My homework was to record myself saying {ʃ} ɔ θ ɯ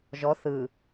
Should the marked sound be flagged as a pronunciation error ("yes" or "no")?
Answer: yes